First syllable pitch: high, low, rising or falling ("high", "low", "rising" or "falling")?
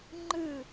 falling